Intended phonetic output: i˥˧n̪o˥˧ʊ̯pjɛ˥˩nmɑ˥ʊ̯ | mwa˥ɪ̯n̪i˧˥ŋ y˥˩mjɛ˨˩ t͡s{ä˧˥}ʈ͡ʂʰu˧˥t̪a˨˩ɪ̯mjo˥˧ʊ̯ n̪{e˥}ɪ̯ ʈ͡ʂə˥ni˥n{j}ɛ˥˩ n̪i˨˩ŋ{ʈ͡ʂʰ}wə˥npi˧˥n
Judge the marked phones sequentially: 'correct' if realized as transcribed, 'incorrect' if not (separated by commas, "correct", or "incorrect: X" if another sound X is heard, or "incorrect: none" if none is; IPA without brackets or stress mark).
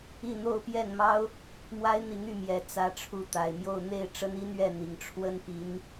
correct, incorrect: e˥˩, incorrect: ɥ, correct